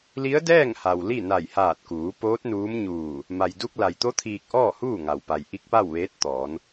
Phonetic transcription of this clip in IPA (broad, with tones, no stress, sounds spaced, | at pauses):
l i˧˥ ə̯ d ɛː˥˨ ŋ h a˩ w l i˥˨ n a˧˩ j h aː˧˩ t̚ k uː˩˧ p oː˧˥ t̚ n uː˧˥ m ɲ uː˧˩ | m a˩ j d u˧ k̚ l a˩ j t̪ o˧˥ t̪ʰ iː˧ k̚ ʔ ɔː˥˨ h uː˥˨ ŋ a˩ w p a˩ j ʔ i˧˥ k̚ p a˥˨ w ʋ eː˧˥ t̚ t̪ ɔː˩˧ n